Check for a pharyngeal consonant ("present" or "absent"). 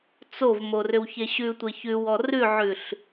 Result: present